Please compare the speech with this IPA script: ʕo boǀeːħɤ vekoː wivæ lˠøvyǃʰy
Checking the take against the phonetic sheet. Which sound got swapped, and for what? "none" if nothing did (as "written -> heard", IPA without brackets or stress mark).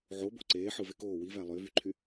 ɤ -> ɯ